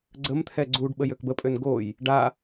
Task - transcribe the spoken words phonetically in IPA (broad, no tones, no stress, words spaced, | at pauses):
ɡ͡ǀəmt̪ʰɛ ɡ͡ǀuɖ ɓəjøkbəpʼøn ɡoj | ɖa